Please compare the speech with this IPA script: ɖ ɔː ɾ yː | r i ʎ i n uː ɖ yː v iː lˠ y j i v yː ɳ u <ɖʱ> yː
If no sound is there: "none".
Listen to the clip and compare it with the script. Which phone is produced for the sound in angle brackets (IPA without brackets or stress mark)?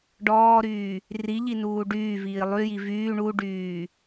ɖ